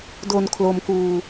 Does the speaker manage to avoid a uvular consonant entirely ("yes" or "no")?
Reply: yes